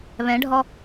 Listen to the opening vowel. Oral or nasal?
nasal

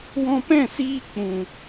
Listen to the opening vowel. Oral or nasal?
nasal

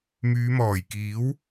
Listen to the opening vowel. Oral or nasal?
oral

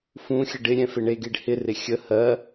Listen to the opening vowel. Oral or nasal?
nasal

